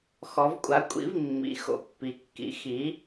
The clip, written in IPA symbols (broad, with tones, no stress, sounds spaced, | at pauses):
x ɔ˩˧ v kʷʼ a˩˥ kʷʼ ḭ˩˥ v mː ḭ˩˥ x o̰˩˧ pː i˩˧ kː ḭ˩˥ x i˩˥